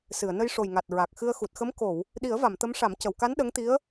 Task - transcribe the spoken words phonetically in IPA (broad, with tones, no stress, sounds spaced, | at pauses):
s ɨ˨˩˨ ə̯ n ə˧ j ʂ o˨˩ j ŋ a˨˩ t̚ ɹ a˨˩ k̚ x ɨ˧ ə̯ x u˨˩ t̚ x ə˧˥ m k o˨˩˨ w | ɗ i˨˩˦ ə̯ v a˨˩˨ m t̪ ə˧˥ m ʂ a˨˩˦ m c ə˨˩˨ w k a˧˥ n ɗ ə˧˥ ŋ t̪ i˧˥ ə̯